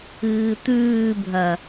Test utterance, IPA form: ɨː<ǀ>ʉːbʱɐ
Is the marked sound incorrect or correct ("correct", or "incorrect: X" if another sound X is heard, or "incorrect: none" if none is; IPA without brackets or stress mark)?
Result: incorrect: t̪